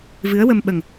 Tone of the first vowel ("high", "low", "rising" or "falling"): rising